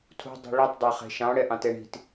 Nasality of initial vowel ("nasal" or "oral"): oral